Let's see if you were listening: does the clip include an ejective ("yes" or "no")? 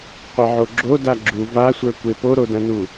no